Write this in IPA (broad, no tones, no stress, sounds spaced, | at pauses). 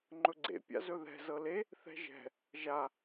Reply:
ŋ͡ǃ ɵ ɡ͡ǀ ḛ pʲ a̰ z ɵ ð ɛ̤ z ɤ l e | θ ɛ̤ ʒ ɛ̤ | ʒ a